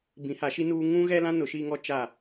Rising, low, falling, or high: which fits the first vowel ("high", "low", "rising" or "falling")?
rising